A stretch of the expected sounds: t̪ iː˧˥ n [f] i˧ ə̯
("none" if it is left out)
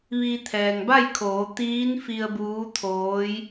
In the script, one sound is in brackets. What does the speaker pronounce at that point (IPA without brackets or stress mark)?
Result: f